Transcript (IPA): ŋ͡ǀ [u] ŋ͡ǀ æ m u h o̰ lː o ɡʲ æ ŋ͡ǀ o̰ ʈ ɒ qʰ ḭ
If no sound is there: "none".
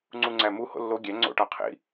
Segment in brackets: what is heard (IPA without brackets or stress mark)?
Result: u